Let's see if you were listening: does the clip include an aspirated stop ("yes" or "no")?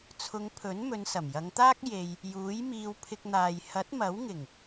yes